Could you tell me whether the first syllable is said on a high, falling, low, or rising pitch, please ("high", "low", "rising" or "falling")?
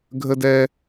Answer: high